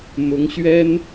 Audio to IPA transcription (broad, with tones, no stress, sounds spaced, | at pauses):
m ʊ˧˥ ŋ ɕ ɥ ɛ˥ n